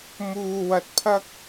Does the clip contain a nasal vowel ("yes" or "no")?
no